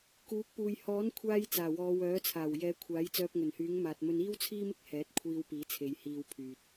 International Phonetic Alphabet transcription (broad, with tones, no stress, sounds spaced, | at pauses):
k uː˨˥ k̚ p uː˨ j h ɔː˨˥ n kʷʰ aː˧ j t͡s aː˨˩ w ɔː˨˧ w œː˨˥ t͡sʰ aː˨˩ w j ɛː˨˧ kʷʰ aː˨˥ j t͡s œː˧ p̚ ŋ ɵ˨˩ n h yː˨˥ ŋ m aː˨ t̚ m ɵ˧ n iː˥ w t͡sʰ iː˥ m ɪ˥ k̚ h ɛː˨˥ t̚ kʷʰ iː˧ w p iː˨˥ t͡sʰ e˨˧ j h iː˧ w pʰ yː˨ t̚